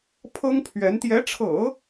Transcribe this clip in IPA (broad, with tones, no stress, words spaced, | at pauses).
pʰɤ˥ŋpʰɥɛ˧˥n t̪jɛ˧˥ʈ͡ʂʰɤ̰˨˩˦